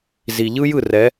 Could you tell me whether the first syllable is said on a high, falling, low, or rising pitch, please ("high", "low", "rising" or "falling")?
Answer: low